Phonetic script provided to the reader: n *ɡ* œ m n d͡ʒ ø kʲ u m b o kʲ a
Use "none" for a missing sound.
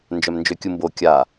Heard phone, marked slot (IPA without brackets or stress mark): d͡ʒ